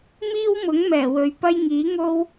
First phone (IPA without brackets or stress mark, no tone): m